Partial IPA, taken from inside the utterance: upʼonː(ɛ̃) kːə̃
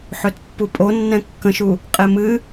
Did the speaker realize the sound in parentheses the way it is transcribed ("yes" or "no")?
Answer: yes